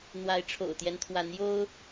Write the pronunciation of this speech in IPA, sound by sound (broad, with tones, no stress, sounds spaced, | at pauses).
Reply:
n̪ w a˨˦ ɪ̯ ʈ͡ʂʰ o̰˨˩ ʊ̯ t̪ j ɛ˦ n t̪ʰ w a˨˦ n j o˦ ʊ̯